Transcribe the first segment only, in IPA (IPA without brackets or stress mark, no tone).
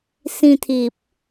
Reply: s